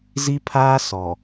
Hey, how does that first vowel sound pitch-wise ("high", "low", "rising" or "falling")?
high